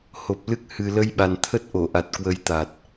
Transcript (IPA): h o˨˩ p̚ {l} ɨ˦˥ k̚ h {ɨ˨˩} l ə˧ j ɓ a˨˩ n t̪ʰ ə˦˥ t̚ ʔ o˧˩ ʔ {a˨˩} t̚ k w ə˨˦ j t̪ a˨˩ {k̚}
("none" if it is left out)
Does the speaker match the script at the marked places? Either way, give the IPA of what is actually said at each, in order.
l, ɨ˨˩, a˨˩, t̚

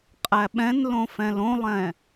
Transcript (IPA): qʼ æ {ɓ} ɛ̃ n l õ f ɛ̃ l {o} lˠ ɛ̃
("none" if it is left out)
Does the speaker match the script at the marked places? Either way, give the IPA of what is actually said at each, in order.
ɓ, õ

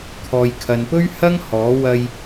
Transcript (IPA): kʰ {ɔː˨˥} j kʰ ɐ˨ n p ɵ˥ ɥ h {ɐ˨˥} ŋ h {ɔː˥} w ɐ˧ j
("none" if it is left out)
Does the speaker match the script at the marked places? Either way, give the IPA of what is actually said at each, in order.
ɔː˨, ɐ˥, ɔː˨˥

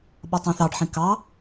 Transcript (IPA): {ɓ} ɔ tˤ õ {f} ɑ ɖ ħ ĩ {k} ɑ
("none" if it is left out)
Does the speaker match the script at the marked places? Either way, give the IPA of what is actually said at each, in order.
ɓ, θ, k

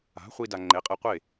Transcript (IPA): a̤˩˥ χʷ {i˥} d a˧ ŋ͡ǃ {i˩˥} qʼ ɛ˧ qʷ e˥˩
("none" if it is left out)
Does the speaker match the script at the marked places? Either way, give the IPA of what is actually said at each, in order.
i˥, e˩˥

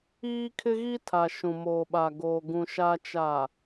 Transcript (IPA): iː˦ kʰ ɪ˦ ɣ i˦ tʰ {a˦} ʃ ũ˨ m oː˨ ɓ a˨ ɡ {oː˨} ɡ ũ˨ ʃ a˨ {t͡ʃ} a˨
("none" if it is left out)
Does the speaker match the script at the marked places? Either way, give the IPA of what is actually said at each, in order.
a˨, oː˨, t͡ʃ

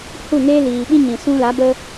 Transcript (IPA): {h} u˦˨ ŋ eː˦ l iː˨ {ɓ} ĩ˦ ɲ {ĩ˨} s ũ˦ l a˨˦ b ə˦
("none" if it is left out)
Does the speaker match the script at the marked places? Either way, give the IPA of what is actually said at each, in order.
h, ɓ, ĩ˨

